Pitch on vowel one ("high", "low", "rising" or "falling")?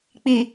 low